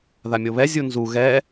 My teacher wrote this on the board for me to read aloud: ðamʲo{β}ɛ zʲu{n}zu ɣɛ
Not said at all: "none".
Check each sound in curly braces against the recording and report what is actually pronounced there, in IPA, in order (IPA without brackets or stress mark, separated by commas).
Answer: β, n